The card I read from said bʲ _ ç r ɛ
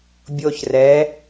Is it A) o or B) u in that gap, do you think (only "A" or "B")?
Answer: A